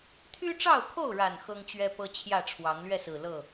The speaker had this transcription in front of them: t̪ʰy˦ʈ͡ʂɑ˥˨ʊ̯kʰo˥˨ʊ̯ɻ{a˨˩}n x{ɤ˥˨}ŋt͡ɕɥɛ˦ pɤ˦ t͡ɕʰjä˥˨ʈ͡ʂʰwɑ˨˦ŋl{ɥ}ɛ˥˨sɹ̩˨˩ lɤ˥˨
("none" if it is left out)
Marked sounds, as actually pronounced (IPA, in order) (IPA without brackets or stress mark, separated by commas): a˨˩, ɤ˦, ɥ